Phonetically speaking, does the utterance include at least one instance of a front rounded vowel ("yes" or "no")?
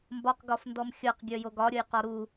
yes